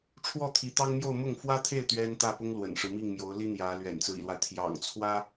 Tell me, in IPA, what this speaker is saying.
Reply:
ʈ͡ʂʰ w ɔ˥˩ t̪ʰ i˧˥ t̪ ɑ˥ ŋ m j o˥˧ ʊ̯ m ʊ˥˩ ŋ f w ä˥ t̪ʰ e˥˩ ɪ̯ t̪ ɥ ɛ˥ n t̪ ä˥˩ p ʊ˥ ŋ l w ə̰˨˩ n ʂ ɻ̩˦ m i˥˩ ŋ m j o˧˥ ʊ̯ l i˥ n̪ j ä˧˥ l ɥ ɛ̰˨˩ n t͡s ɹ̩˦ ḭ˨˩ l w a˦ ɪ̯ t̪ʰ j ɑ̰˨˩ ŋ t͡sʰ w ä˥

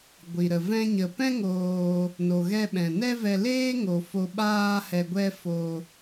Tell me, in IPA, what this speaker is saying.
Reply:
ɡʷ i˨ ɾ ə˨ v ɛ̃˧ ɲ ə˨ p ɛ̃˦ ŋ oː˧ | n o˨ ɣ ɛ˧ ɓ ɛ̃˨ n ɛ˦ v ɛ˧ l eː˦ ŋ o˨ f o˧ ɓ aː˦ h ɛ˧ ɡʷ ɛ˦ f o˧

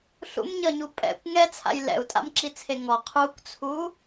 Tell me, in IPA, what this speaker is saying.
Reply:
ɬ ṵ m ɲ ʌ ɲ u pʼ ɛ̰ kʷ ŋ ɛ t͡sʰ a̰ j l ɛ̰ u̯ tʼ a̰ m ǁ i t͡sʰ e ŋ ɔ qʰ u kʷ t͡sʰ u

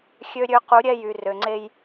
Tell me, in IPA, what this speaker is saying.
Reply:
xʲ ø˦ ɾʲ ø˦ q u˨˦ ɾʲ ɛ˦˨ j y˨ r ø˨ ŋ͡ǀ e˦ j

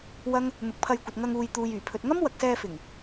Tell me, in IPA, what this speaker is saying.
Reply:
w ɐ˥ ŋ | n̪ ʊ˨˥ k̚ pʰ ɐ˧ j kʷ ɐ˨ t̚ ŋ ɐ˧ ŋ uː˨ j t̪ uː˨ j yː˨˩ pʰ ɵ˨ t̚ ŋ ɐ˥ m w ɐ˨ k̚ s ɛː˧ f ɪ˨˩ ŋ

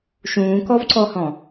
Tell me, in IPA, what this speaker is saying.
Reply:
ʃ ũː k ɔ v ǀ ɔ h ɔ̃

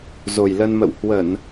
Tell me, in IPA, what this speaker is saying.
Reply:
z o˨˩ j l ə˧ n m ə̰˧˨ w h w ə˧˩˨ n

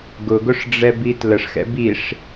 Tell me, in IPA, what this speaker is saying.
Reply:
ɡ ʊ ɡ ʊ ʂ ɖ͡ʐ ɛ b i t l ə ʂ x ɛ̰ b i ʂ

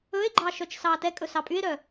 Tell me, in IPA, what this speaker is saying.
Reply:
ɵ e̯ ɡ͡ǃ ɑ ʃ œ t͡ʃ s ɑ t ɛ kʼ ɵ s ɑ pʼ y e̯ ɾ œ

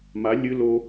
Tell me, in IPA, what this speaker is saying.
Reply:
m a lʲ ɨ l o

